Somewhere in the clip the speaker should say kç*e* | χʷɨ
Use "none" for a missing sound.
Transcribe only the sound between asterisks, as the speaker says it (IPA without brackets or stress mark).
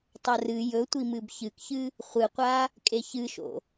ɨ